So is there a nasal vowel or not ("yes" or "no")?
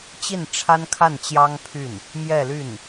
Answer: no